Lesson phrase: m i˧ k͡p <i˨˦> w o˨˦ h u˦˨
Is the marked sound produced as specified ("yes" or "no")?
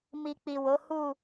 no